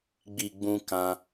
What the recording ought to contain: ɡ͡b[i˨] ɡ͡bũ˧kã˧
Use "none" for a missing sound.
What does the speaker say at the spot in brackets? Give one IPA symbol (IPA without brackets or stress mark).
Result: i˨